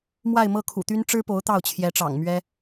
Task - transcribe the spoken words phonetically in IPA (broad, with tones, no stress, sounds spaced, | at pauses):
m w a˥˧ ɪ̯ m ɤ˥˩ kʰ ṵ˨˩ t̪ y˥ n ʈ͡ʂ ɻ̩˥ p o˧˥ ʊ̯ t̪ ɑ˥˩ ʊ̯ t͡ɕʰ j ɛ˧˥ ʈ͡ʂ ɑ̰˨˩ ŋ m ɥ ɛ˥